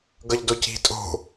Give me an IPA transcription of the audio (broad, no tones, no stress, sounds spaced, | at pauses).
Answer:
ɡ ʌ ʎ d o c i̤ tʼ o̤